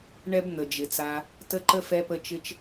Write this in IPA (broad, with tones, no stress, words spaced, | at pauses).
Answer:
ɳɛ˦bn̪ə˨d͡ʒɪ˨t͡sa˧ | tə˧ǃə˧ fɛ˧pə˧ t͡ʃɪ˧t͡ʃ